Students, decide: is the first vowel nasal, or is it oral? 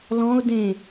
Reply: nasal